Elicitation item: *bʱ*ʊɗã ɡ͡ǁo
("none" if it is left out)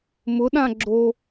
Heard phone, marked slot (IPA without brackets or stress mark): m